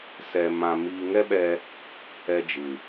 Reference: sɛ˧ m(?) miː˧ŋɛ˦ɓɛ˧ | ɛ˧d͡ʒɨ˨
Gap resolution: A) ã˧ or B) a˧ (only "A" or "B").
A